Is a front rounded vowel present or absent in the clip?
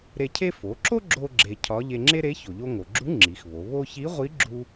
absent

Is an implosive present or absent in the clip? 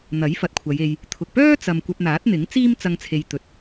absent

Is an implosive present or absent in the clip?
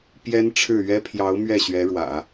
absent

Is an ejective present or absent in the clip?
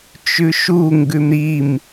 absent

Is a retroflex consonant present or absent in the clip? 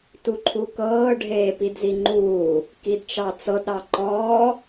present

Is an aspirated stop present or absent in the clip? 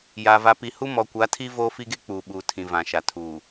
present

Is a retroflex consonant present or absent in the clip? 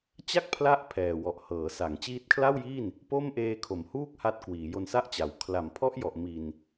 absent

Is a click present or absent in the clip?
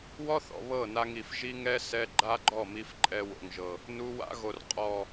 present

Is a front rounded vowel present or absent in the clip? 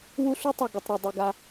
present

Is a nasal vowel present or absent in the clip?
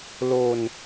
absent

